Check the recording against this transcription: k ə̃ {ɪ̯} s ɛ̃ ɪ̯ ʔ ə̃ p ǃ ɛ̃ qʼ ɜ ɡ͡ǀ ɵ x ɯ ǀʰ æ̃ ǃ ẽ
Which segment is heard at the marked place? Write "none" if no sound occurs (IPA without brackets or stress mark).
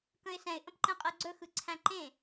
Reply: ɪ̯